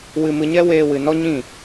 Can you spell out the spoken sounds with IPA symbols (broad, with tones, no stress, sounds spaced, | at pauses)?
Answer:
w ɨ˧ m ɨ˧ ɲ ɛ˦ w eː˧ w ɨ˨ n ɔ˦ ɲ ĩ˦˨